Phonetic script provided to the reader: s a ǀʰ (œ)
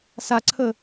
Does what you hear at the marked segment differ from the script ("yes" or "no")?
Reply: yes